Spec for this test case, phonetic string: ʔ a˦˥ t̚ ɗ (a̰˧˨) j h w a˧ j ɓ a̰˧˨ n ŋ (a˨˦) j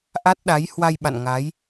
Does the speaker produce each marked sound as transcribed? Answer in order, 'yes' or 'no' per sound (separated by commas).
no, yes